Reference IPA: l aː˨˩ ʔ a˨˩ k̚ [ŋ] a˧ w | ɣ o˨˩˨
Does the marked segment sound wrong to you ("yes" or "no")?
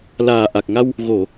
no